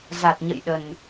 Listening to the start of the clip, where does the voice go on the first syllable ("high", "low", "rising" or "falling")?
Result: low